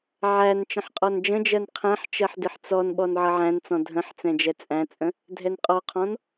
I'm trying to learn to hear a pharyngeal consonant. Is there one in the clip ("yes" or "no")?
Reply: yes